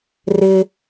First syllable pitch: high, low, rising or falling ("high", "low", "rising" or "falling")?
high